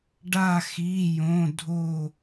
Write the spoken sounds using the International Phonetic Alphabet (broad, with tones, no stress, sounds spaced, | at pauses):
ɖ a˧˩ x i˩˧˩ j õ˩˧˩ dʱ o˧˩